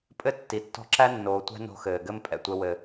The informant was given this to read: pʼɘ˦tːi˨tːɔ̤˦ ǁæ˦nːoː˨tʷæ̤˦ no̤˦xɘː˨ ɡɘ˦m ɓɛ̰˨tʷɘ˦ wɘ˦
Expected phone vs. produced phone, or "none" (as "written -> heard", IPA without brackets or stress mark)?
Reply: ɓ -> pʼ